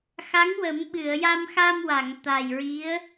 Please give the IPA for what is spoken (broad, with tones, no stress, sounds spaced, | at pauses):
x a˧˥ ŋ w ə˨˩˦ m ɓ ɨ˨˩˨ ə̯ j a˧ m x a˧ m w a˨˩˨ ŋ t̪ a˨˩ j ɹ i˧˥ ə̯